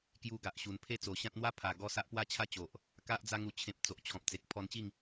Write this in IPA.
kju˧ɡa˨ʔɕu˨˩n pʰe˥˧t͡so˨˩ɕã˦t̚ n̪wa˦pʰa˨˩ɡɔ˧ sa˦ʔpwa˥˧t͡ɕʰa˦t͡ɕo˨ʔ | ka˦ʔ d͡za˧ŋu˨˩t͡ɕʰẽ˨p̚ t͡so˨ʔt͡ɕʰɔ̃˨p̚t͡se˨k̚ pʰɔ˧nt͡ɕi˥˧ŋ

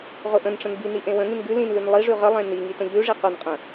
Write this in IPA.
ʁʊʔə̃nʈ͡ʂə̃n bini ʔẽwə̃ŋĩn ɡʉ lĩnlʉn lˠiʐʉ ʁəlˠẽ niŋi tə̃ʎʉʐi qʊnqʼə̃

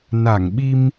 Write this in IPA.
na˧˩ŋɓi˧m

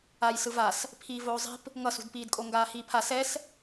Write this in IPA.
aj sɯvas | pʰiːvoːzˤi̤p | ŋʌsṳdpiːdkʼo ŋɡaːhiːpʰa sɛs

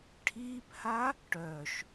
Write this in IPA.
ʈʰiːpha | ʈœʃ

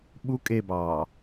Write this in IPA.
ɓu kʼebɑː

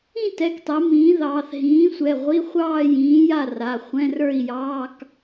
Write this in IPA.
ĩ˥˧tɛ˩˧˩ktˤɛ˩˧ mĩː˩˥ ðɑː˩˧θ ɦĩː˩˥sʷɛ˩˧˩ʁʷi˧˥˧ χʷɑː˥˧jĩː˩˥ ja˥˧ra˩˧˩ χʷɛ̃˧˥˧ rə˞˥˧i̯jɑː˧˥˧k

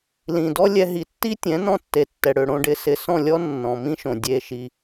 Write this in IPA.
lĩ˨dɔ˦ lʲɛ˧ɦi˨tːi˦ tʲɛ̃˨˦nɔ̃˧tːe˨ tːɛ˨ɽø˨ɽõ˦˨ ɖɪ˧sɪ˨sɔ̃˦˨lʲɔ˦ nːɔ̃˨mĩ˦ʃõ˨ dʲe˧ʃi˧

